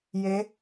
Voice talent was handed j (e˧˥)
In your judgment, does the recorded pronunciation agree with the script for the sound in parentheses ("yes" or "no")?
yes